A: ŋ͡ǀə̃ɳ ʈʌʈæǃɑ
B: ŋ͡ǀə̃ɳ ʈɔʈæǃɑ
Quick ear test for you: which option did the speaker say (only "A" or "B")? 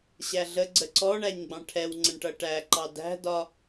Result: A